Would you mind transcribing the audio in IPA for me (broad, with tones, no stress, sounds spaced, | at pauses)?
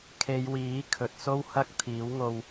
kʰ e˨˧ j w iː˨˥ kʰ ɵ˨ t̚ s o˥ w h ɐ˥ k̚ t̪ʰ iː˨˥ w ŋ o˧ w